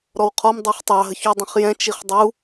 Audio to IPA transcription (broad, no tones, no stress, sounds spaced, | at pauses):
ɾ ɔ w qʰ ɔ m dˤ u χ tˤ ɑ ɦ ə ç u dˤ ə̃ χ j ɛ̃ t͡ʃ i χ dˤ u